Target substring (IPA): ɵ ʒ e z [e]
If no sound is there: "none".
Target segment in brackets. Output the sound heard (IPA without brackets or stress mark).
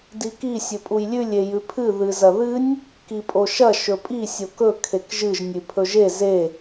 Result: e